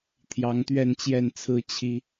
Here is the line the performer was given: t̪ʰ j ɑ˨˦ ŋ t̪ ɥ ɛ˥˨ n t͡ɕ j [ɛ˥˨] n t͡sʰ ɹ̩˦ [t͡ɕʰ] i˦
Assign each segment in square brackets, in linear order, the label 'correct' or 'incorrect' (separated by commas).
correct, correct